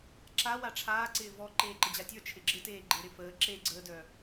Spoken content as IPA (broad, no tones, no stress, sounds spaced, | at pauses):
ǁ a w a ʈ͡ʂʰ aː ǀ ɪː v ɔ ǃ eː ǃ ə d͡ʑ a tʲ ə˞ t͡ʃʰ ɪ ɡ͡ǁ ɪ t eː ɡ͡ǃ e ɾ ɪ f əː ǁ e ɡ͡ǀ əː d œ